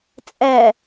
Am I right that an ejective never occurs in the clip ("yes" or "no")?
no